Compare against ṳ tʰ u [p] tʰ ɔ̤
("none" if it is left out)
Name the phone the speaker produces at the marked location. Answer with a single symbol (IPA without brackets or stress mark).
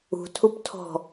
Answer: p